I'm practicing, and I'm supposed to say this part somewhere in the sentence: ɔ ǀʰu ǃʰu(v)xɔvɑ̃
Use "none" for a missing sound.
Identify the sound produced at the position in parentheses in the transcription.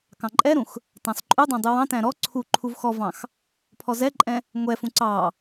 v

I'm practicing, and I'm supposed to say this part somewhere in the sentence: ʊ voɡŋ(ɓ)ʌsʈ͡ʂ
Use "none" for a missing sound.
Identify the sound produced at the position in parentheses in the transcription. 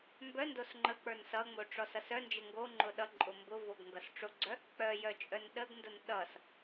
ɡ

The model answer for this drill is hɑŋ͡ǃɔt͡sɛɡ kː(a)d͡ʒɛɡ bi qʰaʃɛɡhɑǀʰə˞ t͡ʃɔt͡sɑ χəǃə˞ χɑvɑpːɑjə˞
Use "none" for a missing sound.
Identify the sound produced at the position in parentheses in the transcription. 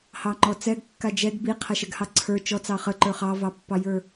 a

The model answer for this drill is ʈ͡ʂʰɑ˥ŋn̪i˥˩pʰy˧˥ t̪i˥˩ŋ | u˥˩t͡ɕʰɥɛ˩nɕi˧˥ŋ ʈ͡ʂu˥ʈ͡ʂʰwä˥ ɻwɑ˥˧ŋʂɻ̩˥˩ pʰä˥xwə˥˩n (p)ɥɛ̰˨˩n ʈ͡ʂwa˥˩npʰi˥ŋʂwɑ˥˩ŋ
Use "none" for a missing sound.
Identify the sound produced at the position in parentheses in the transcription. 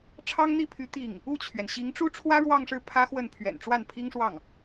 pʰ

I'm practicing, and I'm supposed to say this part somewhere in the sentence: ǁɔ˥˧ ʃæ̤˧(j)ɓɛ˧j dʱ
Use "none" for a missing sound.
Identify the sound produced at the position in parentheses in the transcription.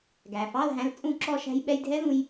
j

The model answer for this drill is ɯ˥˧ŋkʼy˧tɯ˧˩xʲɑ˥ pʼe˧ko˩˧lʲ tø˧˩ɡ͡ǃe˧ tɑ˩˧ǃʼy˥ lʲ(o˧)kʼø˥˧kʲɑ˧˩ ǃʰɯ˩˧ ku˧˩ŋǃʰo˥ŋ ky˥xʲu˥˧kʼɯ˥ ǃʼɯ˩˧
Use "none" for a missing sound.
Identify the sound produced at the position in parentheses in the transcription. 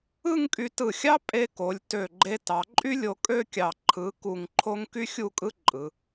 o˧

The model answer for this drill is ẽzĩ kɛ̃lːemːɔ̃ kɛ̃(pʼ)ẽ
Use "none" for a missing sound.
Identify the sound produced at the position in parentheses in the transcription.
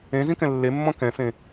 f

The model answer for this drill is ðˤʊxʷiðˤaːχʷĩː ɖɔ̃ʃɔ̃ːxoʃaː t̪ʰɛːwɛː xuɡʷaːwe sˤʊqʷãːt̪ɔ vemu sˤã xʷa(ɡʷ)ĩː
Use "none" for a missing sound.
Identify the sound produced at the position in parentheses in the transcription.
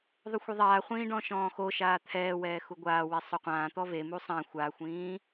xʷ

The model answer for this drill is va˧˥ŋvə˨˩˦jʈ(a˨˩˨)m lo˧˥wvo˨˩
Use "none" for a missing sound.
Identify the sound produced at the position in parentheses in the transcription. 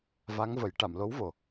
a˨˩˨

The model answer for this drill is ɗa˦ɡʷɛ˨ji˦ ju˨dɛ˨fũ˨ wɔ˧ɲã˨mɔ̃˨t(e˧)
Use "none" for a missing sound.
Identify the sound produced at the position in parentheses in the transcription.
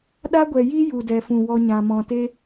e˦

